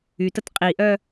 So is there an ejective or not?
yes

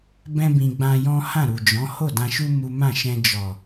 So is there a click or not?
no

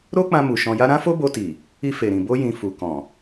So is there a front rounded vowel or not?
no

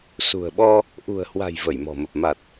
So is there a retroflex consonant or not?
no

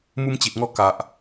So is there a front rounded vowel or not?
no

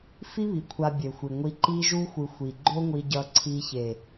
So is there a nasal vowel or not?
no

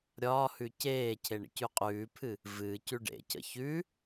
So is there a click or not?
no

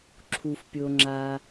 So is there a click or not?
yes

